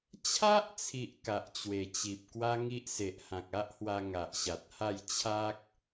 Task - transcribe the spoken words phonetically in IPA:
t͡ɕʰ a˦ ʔ t͡sʰ i˨ ʔ k a˨ ʔ t͡ɕ w e˨˩ t͡ɕ i˨ p̚ k w a˦ ŋ i˦ ʔ s e˨ ʔ h ã˨ k̚ a˦ ʔ h w a˧ ŋ a˨ ʔ ɕ a˨ t̚ h a˥˧ j t͡ɕʰ a˦ k̚

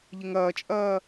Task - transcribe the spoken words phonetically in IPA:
ʎ ɪ ŋ ɐː t͡ʃʼ ɐː

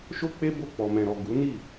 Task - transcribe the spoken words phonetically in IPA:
ʃ o˦ k͡p e˦ b o˦˨ k͡p ɔ˨ m ɛ̃˨ ɾ ɔ˨ ɡ u˨˦ n i˦˨

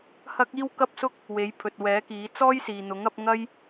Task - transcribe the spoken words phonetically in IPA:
h ɐ˥ k̚ iː˥ w k ɐ˥ p̚ s ʊ˥ k̚ | w e˨˥ j pʰ ɵ˨ t̚ w ɛː˨˥ k iː˨˥ t͡s ɔː˥ j s iː˨ n̪ ʊ˨˥ ŋ ɐ˨˥ p̚ ŋ ɐ˥ j

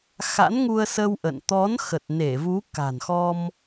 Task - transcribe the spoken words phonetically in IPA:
x a̰˧˥ n ŋ u˧ ə̯ s ə˧ w ʔ ə̰˧˨ n t̪ ɔ˨˦ n x ə˨˩ t̚ n e˧˩ v u˨˦ k a̤˨˩ n x ɔ˧ m

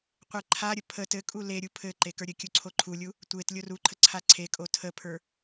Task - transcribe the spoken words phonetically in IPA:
qʷ e ǃʰ a ɾʲ ə pʰ ə t ɘ kʼ u l e ɾʲ u pʰ ɘ ǃ e k ə˞ ɾʲ ɘ kʲ u ǀʰ o ǃʰ u lʲ u | tʷ e t lʲ o r u ǃʰ ə ǀʰ a ǀʰ e kʼ o tʰ ə pʰ ə˞

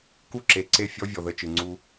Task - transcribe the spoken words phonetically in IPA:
k u˦˨ ǁ e˨ ǀ e˦˨ fʲ ɔ˦ vʲ ɔ˨ ð ə˦˨ t͡ʃ ɯ˨ ŋ͡ǀ u˦

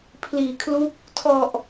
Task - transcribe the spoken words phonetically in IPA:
pʰ l iː˩˦ kʰ l u˦˥ k̚ | tʰ ɔ˨˩ ʔ

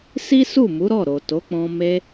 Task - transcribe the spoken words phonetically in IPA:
s i˦ s u˦˨ m u˨˦ ɾ ɔ˦˨ ɾ o˨ t o˨˦ k͡p ɔ̃˧ m e˧

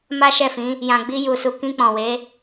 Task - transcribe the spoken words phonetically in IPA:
m a˦ ʃ ɛ˦˨ f ĩ˨˦ | j ã˨ ɡ͡b i˧ j u˨ s u˨ k ĩ˧ k͡p ɔ̃˨ w e˨˦

